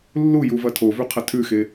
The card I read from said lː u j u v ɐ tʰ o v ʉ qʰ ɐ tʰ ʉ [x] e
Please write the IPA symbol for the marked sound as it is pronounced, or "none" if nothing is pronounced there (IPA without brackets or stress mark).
x